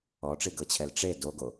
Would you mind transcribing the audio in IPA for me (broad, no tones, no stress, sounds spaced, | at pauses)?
ɔ ʈ͡ʂ i ɡ ɤ t͡ɕʰ ɛ l ʈ͡ʂ e d o ɡ o